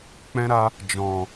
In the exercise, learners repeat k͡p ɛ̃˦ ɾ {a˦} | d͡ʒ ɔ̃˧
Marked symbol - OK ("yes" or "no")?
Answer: yes